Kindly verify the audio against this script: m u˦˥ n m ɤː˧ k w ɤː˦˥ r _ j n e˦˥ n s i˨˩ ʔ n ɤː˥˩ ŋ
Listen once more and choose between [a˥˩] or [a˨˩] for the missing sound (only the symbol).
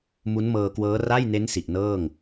a˥˩